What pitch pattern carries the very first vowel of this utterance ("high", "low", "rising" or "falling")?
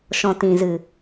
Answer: low